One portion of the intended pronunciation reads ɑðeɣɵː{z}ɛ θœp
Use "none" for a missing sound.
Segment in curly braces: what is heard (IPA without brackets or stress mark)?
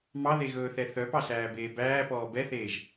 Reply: θ